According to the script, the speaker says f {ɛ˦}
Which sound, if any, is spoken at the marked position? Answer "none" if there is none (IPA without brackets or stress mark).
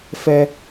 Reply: ɛ˦